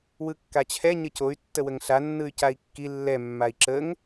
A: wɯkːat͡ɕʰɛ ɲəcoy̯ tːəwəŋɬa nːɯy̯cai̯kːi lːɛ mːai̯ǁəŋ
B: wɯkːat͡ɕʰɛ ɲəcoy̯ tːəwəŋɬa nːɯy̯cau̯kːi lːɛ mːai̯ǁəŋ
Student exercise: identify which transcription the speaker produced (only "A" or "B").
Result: A